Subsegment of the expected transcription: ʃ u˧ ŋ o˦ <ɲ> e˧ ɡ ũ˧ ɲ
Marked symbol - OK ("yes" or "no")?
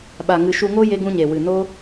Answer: no